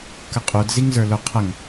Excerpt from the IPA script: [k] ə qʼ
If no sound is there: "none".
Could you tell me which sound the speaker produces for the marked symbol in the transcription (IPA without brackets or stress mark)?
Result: k